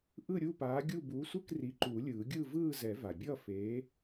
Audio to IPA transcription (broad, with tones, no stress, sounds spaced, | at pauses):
ʔ ɯ˥˧ ɾʲ u˥˧ p aː˨˥ ɡʲ u˥˧ b u˨˥ sʷ ɯ˥˧ k r i˨˥ ǃ uː˨˩˦ lʲ ɯː˨˩˦ ɡʲ ɯ˥˧ v ɯː˥˧ z ɛ˨˩˦ v a˩ bʲ ʌ˥˧ f eː˨˥